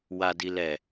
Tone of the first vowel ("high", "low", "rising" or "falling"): low